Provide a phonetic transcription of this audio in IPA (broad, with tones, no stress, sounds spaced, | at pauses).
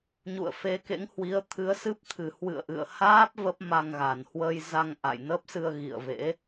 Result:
ɲ ṵ˧˨ ə̯ f e˨˦ k ḛ˧˥ ŋ h w i˨˦ ə̯ t̪ʰ ɨ˨˦ ə̯ s ɨ˦˥ p̚ t̪ʰ ɨ˨˩ h w ɨ̰˧˨ ə̯ ʔ ɨ̰˧˨ ə̯ h aː˦˥ p̚ v ə˦˥ p̚ m a˧ ŋ ɣ a˨˩ n h w ə˧ j z a˧ ŋ ʔ a̰˧˨ j n ə˦˥ p̚ s ɨ˧ ə̯ ɣ ḭ˧˨ ə̯ v ḛ˧˥